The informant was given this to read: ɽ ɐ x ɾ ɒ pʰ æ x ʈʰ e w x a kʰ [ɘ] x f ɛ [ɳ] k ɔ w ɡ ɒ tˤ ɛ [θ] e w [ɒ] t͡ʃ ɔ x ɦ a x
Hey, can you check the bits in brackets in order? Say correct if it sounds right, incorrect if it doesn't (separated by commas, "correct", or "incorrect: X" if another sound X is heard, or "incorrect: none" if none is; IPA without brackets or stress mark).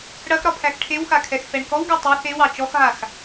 incorrect: ɛ, correct, correct, incorrect: ɑ